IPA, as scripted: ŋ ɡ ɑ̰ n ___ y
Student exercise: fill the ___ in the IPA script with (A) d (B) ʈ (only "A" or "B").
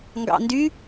A